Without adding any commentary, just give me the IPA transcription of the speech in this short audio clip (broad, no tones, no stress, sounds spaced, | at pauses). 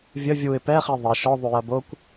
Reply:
vʲ ə vʲ u ɪ̯ p ɛ χ i ðˤ ə ʃ ɔ ðˤ u j ɐ b o kʷ